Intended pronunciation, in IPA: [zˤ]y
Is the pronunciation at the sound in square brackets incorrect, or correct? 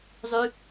correct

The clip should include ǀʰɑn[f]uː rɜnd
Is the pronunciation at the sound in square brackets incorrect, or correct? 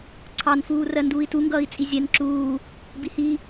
correct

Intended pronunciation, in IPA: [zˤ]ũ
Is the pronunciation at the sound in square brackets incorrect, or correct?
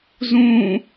incorrect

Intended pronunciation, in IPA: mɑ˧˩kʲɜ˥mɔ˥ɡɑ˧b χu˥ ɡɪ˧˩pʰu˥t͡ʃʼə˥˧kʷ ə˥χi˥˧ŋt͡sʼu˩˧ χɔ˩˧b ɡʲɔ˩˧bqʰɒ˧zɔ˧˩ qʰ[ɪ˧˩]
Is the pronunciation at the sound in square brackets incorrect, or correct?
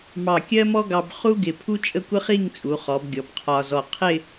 incorrect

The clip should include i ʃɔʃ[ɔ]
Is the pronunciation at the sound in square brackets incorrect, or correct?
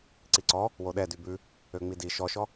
correct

